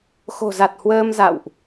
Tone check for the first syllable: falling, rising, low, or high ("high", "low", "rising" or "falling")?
low